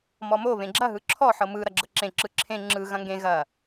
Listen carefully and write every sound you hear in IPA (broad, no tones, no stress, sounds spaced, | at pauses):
m ɔ m o β ẽ ɡ͡ǁ ɐ ɦ ɯ ǁʰ ɔ ħ ɤ m ɯ ɾ ɐ ɡ͡ǁ ɤ ǁ ẽ ǁ ɯ ǁʰ ẽ ŋ͡ǁ ɯ ɣ ɐ̃ ŋ ɡ ẽ ɣ ɐ